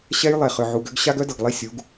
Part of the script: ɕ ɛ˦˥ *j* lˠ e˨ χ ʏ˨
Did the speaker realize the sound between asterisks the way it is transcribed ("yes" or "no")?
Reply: yes